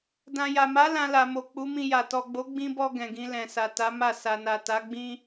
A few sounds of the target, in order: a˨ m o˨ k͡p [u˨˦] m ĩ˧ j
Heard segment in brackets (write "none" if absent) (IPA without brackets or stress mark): u˨˦